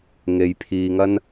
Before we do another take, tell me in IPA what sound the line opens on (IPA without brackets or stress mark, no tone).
ŋ